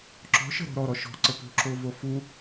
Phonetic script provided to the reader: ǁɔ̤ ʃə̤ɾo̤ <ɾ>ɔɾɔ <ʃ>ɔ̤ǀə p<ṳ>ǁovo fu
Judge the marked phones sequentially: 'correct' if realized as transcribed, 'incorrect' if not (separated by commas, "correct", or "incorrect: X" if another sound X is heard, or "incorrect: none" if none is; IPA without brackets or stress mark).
correct, correct, correct